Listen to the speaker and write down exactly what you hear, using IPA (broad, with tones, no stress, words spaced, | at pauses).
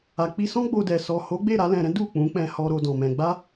a˨k͡pi˧ sɔ̃˦ɡ͡bo˧dɛ˨ sɔ˨ho˨˦ɡ͡be˦˨ ɾa˨˦lɛ̃˧ɾɛ̃˦ du˦˨ k͡pũ˨˦k͡pɛ̃˧ hɔ˧ ɾo˧dɔ̃˨mɛ̃˧ ɡ͡ba˦